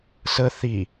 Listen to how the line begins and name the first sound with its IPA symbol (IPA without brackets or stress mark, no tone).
s